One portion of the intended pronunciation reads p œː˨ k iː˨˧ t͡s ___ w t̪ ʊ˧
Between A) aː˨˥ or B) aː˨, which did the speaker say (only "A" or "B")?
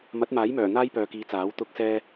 A